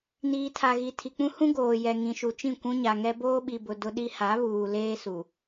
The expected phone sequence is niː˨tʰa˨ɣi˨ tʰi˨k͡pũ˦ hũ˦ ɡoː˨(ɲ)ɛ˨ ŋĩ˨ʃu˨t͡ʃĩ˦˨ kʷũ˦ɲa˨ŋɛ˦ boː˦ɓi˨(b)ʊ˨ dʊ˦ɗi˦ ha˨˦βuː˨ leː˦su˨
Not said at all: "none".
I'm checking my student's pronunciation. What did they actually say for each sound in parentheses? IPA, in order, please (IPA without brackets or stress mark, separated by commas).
j, b